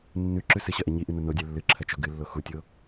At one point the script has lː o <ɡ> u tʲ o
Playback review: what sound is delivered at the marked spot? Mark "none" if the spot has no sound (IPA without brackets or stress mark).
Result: x